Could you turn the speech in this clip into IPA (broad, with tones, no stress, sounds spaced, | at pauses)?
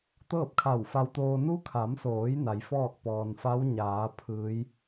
t̪ ɤː˥˨ p̚ kʰ a˧˩ w f a˧ w t̪ oː˧ n u˧˥ kʰ a˩˧ m s oː˩˧ j n a˩˧ j f ɔː˥˨ k̚ p ɔː˩ n f a˧˥ w ɲ aː˩˧ pʰ ɯː˩˧ j